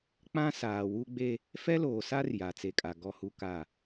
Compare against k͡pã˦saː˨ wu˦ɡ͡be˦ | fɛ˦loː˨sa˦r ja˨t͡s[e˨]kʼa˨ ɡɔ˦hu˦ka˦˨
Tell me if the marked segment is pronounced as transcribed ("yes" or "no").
yes